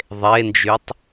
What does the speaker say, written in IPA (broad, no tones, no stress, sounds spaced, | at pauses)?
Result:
ðˤ e n d͡ʒ y tˤ